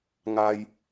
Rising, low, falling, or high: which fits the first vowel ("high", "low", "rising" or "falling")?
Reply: high